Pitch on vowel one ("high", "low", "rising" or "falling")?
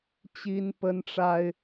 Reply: high